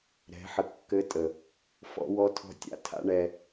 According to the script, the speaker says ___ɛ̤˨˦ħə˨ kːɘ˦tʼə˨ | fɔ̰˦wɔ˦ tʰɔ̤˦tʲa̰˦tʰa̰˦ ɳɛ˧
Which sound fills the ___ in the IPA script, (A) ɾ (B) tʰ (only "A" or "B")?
A